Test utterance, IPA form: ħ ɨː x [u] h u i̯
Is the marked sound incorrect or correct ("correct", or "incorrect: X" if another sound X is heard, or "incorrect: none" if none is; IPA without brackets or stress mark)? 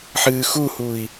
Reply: correct